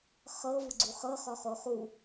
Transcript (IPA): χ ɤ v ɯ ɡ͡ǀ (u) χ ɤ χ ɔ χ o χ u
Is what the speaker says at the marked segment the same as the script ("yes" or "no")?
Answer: yes